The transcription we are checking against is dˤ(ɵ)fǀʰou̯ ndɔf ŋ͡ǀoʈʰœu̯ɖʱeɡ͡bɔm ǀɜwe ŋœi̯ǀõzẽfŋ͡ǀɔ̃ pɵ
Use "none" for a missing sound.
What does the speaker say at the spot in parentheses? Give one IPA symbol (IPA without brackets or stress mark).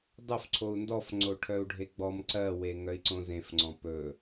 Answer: ɵ